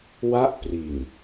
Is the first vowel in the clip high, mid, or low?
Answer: low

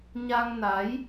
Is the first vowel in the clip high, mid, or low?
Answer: low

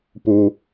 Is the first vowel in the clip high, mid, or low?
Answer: high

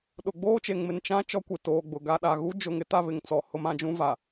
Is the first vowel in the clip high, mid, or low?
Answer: high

